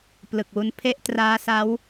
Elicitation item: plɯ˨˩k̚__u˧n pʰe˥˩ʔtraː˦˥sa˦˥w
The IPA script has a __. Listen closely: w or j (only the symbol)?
w